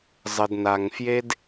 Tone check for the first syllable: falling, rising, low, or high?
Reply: low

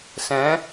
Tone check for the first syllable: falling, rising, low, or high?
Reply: rising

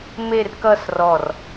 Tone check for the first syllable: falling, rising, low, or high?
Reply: falling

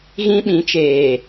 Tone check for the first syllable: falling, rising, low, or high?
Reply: high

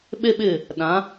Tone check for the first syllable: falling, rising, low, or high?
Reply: high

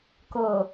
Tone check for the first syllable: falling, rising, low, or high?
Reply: low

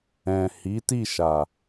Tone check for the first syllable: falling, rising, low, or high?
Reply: low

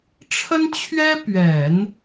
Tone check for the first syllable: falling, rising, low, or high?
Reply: high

